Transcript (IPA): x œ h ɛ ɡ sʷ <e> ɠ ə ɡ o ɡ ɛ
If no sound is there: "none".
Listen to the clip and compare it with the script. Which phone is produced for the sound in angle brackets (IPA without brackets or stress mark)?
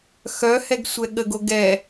ɛ